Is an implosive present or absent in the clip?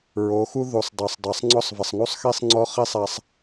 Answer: absent